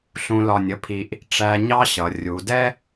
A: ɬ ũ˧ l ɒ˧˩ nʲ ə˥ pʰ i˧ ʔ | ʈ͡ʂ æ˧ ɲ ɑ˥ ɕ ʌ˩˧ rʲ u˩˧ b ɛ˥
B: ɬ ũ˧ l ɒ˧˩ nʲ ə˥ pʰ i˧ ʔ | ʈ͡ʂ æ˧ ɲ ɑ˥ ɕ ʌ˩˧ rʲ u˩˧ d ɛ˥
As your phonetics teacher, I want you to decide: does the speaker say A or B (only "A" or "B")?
B